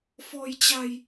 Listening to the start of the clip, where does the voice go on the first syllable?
low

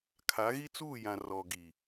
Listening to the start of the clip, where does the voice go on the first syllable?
rising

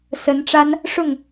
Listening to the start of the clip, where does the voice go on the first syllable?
rising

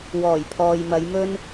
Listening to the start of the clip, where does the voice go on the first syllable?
low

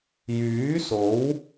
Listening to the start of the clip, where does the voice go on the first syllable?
rising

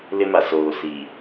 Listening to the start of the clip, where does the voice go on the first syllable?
high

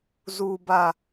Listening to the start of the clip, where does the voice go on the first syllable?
low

